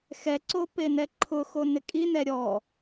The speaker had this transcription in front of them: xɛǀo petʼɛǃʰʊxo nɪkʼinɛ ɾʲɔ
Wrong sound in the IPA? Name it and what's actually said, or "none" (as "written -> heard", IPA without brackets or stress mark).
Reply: tʼ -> n